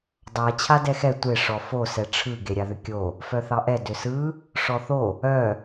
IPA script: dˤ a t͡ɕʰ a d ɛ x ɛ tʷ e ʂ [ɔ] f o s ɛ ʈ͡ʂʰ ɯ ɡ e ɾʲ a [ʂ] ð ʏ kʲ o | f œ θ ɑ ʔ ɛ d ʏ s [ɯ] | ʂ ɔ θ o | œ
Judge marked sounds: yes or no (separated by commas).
yes, no, yes